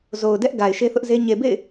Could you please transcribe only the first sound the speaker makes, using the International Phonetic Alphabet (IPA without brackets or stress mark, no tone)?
z